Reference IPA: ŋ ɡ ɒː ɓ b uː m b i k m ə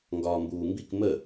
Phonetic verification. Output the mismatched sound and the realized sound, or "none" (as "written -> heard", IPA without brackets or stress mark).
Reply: ɓ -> m